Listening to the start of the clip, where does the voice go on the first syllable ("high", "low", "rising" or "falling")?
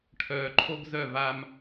low